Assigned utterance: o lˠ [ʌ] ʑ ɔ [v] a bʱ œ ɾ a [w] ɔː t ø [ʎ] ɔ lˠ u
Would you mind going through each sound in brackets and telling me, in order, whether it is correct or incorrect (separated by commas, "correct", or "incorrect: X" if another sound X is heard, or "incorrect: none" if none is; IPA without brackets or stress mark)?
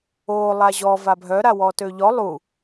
incorrect: a, correct, correct, correct